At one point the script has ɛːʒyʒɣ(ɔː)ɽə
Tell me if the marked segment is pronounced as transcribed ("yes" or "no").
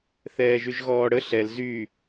yes